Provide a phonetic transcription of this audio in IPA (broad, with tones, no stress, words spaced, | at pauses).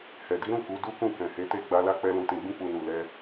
hɛ˨di˨˦ɾũ˦˨ ku˨˦du˦kũ˦˨kɛ̃˨ he˨˦te˦˨ ɡ͡ba˧la˦k͡pɛ˧ lũ˨tĩ˨ɡ͡bĩ˧k͡pu˨ nu˨lɛ˧